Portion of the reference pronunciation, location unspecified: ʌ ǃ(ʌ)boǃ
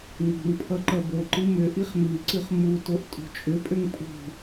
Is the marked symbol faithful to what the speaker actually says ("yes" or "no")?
yes